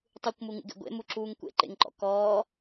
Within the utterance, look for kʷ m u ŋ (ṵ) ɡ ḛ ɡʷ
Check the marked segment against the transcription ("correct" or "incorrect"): correct